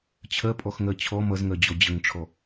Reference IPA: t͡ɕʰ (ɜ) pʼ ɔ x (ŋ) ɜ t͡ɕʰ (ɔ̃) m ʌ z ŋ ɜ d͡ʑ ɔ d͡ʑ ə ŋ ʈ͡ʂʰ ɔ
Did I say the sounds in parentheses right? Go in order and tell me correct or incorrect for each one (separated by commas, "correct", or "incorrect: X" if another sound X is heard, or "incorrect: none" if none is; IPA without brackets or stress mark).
correct, correct, incorrect: ɔ